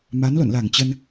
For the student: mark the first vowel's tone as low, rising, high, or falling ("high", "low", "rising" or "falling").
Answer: rising